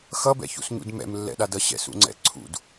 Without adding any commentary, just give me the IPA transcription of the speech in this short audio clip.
x ʌ b ɛ̰ ç ṵ s ɲ ṵ d m ɛ̰ m lː ɛ̰ ɗ a d ʌ ɕ ɛ̰ s ṵ ŋ͡ǀ ɛ̰ ǀʰ ṵ d

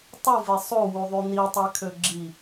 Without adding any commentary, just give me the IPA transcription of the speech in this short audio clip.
tˤ u v e sˤ o w u ðˤ y n i tˤ æ kʰ ø ɡ͡ǁ i

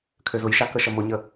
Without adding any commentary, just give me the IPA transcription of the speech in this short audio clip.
kʰ ø z ʊ j ʃ a k ə ʃ ə m ʊ ɲ ə

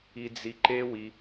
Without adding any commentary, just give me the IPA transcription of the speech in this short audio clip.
i˧ d͡z i˧ ǃ e˦ w i˧

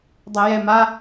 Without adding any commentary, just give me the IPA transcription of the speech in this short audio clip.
dˤ ɛ j ɛ m a

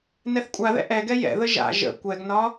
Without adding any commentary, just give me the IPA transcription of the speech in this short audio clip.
n ɛ θ kʷʼ a ð ɛ̰ ʔ ɛ ɡ ɛ j ɛ̰ ð ə ʒ a̰ ʒ ə̰ kʷ ɛ ɡ n ɒ

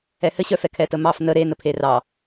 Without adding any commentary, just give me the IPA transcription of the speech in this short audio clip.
ɛ h ɘ ɕ œ f ɛ kʰ ɛ t ə m ɑ f n ə ɾ e n ə pʰ e r ɑ

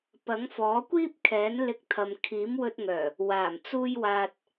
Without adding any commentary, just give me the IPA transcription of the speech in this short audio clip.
p ɐ˨˥ ŋ f ɔː˨˥ kʷ iː˥ p̚ kʰ ɛː˨˥ n l ɪ˧ k̚ t̪ʰ ɐ˨ m kʰ iː˨˥ m w ɵ˧ t̚ ŋ œː˨˩ | w aː˨˩ m t͡s uː˧ j w aː˨ t̚

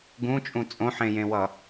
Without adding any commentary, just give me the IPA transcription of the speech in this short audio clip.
ɡ ũ t͡ʃʼ ũ t͡sʼ õ ħ ẽ j ẽ w ʌ

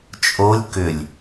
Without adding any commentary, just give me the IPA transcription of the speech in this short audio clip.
t͡ʃʼ o lʲ k ʏ lʲ

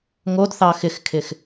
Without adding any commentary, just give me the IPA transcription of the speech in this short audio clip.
ŋ o d θ ɑ x ɪ x kʰ ɪ x

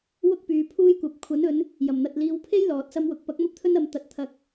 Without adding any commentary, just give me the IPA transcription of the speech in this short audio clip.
w ʊ˥ k̚ p yː˨˧ pʰ uː˥ j kʷ ɐ˨˥ p̚ kʷʰ ɐ˨˥ n ɵ˨˧ n | j ɐ˨˩ m n̪ ɐ˨ t̚ l iː˨˧ w pʰ e˥ j l ɔː˨ t̚ s ɐ˥ m w ʊ˨˥ k̚ p ɐ˨˥ k̚ m ɐ˥ p̚ t̪ʰ ɵ˥ n ɐ˨˧ m t̪ ɐ˨ t̚ t̪ʰ ɐ˨ k̚

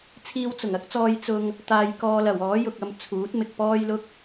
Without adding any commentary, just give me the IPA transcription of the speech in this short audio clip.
t͡sʰ iː˧ w t͡s ʊ˨˩ ŋ ɐ˨˥ k̚ t͡s ɔː˧ j t͡s ʊ˧ ŋ | t̪ aː˨ j k ɔː˨ l ɐ˨˩ w ɔː˨˥ j ʊ˨ k̚ ɐ˧ m t͡sʰ uː˨˥ t̚ m ɪ˨ k̚ p ɔː˥ j l ʊ˥ k̚

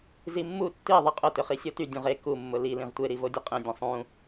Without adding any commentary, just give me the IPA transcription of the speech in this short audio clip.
z i mː u tː i ðˤ i qʼ ʊ t ʏ χ i sʲ o t y dʲ ũ ʁ e k u mː ʊ l i l ĩ ʁ tʷ e ɾ i v o dʲ ə qʼ ẽ dʲ ɐ̃ sˤ ũ

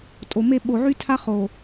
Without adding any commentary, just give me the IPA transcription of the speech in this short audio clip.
tʼ o˨ m e˦ ɓ o˨ ʕ y˦ tʰ a˦ χ o˨

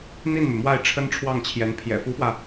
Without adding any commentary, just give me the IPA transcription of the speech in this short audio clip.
n̪ i˥˩ n m y˩ m w a˥˩ ɪ̯ ʈ͡ʂʰ ə˥ n ʈ͡ʂʰ w ɑ˥˩ ŋ t͡ɕʰ j ɛ˧˥ n pʰ j ɛ̰˨˩ f u˧˥ f w ä˧

